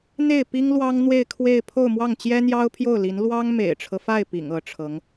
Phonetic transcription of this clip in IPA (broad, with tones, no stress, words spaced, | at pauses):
n̪e˥˩ɪ̯ pi˥ŋlwɑ˥ŋ n̪we˥˧ɪ̯kʰwe˥˧ɪ̯ pʰo˥˧ʊ̯mwɑ˥˩ŋ t͡ɕjɛ˥n̪jɑ˥ʊ̯pʰjo˥˩ʊ̯ li˧˥n lwɑ˥ŋmḛ˨˩ɪ̯ʈ͡ʂʰɤ˦fa˥˩ɪ̯ pḭ˨˩ŋ ɤ˧˥ʈ͡ʂʰɤ˧˥ŋ